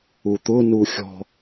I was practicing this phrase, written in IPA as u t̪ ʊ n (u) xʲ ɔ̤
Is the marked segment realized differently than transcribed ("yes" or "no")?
no